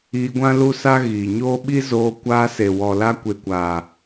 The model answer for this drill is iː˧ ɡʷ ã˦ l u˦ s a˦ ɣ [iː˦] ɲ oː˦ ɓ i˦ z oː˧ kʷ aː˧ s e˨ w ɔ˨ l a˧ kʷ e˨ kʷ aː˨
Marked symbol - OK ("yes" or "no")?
no